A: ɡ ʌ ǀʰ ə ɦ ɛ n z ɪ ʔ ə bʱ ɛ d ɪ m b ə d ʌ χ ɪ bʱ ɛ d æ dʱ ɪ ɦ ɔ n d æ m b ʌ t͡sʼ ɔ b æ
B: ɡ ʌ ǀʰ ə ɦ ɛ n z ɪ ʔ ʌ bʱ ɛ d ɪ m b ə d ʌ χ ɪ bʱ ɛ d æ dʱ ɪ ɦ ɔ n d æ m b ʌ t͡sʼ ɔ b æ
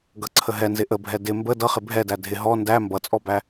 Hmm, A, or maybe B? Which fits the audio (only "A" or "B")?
A